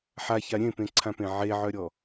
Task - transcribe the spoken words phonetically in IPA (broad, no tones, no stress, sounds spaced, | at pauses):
ħ a ç a ɾʲ ẽ p ẽ ǀʰ ã p ẽ ʕ e ʕ œ ɾʲ ɔ